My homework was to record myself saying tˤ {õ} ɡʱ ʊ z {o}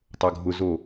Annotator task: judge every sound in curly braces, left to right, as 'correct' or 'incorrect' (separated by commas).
incorrect, correct